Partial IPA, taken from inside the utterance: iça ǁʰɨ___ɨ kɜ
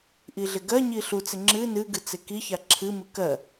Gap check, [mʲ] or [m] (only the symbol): m